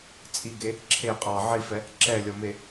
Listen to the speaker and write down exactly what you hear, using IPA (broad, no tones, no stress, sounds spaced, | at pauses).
t͡sʼ i ɡ e | ǁʰ e qʼ ɑ ʕ i f ɛ | ǁ ɛ lʲ ɔ m e